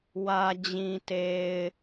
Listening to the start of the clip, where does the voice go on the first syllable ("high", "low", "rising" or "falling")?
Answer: low